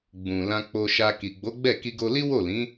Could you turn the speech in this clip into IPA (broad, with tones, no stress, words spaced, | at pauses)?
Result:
ɡ͡bũ˨lã˧ k͡po˧ʃa˧ ki˨ɡ͡bo˨˦ɡ͡bɛ˦˨ ki˧ɡo˧li˦ wo˦˨lĩ˨˦